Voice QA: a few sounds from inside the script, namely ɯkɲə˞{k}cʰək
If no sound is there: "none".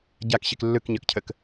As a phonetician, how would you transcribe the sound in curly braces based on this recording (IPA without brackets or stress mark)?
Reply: k